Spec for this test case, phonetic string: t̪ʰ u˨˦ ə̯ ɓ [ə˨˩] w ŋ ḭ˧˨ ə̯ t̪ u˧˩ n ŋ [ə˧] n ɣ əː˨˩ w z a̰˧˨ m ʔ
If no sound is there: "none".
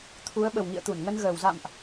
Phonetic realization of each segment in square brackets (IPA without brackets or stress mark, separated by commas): ə˨˩, ə˧